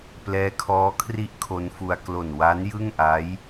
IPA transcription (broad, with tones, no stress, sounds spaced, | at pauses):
p l ɛː˦˥ kʰ ɔː˦˥ kʰ r i˦˥ ʔ kʰ o˦˥ n f u˧ a̯ k l o˨˩ n w a˦˥ n j ɯ˥˩ ŋ ʔ a˦˥ j